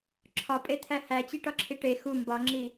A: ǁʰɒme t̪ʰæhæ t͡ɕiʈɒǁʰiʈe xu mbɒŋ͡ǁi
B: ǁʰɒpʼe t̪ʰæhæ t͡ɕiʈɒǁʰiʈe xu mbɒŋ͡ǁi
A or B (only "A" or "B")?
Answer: B